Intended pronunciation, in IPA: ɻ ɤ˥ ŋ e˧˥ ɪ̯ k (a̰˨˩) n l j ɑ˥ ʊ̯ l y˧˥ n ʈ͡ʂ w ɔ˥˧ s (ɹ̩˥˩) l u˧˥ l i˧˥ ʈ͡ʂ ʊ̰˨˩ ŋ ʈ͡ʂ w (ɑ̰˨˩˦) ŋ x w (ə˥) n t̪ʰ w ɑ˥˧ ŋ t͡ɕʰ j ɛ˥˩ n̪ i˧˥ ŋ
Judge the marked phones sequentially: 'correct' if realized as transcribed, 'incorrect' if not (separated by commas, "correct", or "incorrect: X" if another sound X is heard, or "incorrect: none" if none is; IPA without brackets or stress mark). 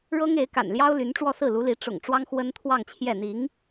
correct, correct, incorrect: ɑ˥, correct